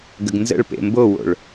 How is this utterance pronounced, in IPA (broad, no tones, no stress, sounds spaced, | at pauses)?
ɡ ə ɡ n z ə̰ ɭ p ḛ m b o w o̰ ɭ